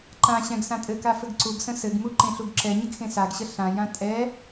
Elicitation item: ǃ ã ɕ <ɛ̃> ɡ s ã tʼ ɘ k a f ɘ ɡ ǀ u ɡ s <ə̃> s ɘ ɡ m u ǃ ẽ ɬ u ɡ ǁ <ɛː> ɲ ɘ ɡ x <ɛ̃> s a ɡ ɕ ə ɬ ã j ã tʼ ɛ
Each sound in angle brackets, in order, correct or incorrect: correct, correct, incorrect: ɛ, incorrect: ẽ

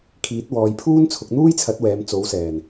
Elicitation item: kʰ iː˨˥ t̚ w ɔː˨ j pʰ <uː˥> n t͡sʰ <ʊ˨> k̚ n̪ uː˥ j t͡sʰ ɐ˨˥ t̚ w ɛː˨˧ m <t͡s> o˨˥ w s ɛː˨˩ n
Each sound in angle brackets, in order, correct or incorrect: correct, correct, correct

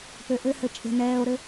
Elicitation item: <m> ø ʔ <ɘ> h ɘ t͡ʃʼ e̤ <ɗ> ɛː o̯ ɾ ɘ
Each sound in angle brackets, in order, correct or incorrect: incorrect: p, correct, incorrect: n

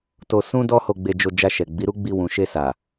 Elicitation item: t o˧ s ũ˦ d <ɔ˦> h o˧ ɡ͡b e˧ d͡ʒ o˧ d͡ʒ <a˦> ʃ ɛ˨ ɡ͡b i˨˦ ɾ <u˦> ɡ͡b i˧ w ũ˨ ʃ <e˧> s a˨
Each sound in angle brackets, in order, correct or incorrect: correct, incorrect: a˧, correct, correct

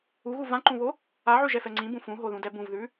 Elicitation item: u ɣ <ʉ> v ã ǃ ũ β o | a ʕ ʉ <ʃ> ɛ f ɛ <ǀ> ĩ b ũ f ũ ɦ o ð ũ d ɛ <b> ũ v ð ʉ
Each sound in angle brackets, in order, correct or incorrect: incorrect: u, incorrect: ʒ, incorrect: ŋ͡ǀ, correct

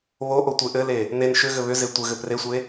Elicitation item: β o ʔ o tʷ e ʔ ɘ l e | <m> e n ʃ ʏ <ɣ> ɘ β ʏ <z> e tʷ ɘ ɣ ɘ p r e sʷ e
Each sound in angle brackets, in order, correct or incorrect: incorrect: n, correct, correct

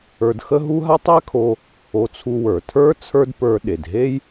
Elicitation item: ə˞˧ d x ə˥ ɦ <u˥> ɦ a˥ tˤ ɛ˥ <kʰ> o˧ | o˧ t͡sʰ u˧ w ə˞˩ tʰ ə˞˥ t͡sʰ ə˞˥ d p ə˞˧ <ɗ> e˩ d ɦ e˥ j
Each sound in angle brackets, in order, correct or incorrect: correct, correct, correct

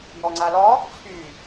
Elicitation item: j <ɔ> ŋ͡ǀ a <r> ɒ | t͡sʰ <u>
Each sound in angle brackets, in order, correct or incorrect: correct, incorrect: l, incorrect: y

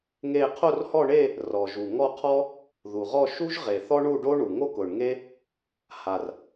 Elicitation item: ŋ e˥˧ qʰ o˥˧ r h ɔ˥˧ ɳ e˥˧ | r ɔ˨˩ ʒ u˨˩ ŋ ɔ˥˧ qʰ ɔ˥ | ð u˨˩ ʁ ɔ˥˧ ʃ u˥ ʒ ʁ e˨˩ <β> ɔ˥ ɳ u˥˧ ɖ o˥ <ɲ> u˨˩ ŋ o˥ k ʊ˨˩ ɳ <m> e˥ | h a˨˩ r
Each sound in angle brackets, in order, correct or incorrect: incorrect: θ, incorrect: ɳ, incorrect: ŋ

